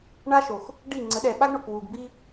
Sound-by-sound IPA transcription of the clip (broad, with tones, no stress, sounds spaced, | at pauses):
ɳ a˦ ʃ o˨ x | ɖ i˦˨ ŋ͡ǀ ə˨˦ ɗ ɛ˨ ɓ a˦ ɡ ɳ o˨ k w u˨ ɡ b i˦